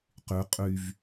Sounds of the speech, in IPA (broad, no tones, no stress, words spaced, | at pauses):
qy qʼyv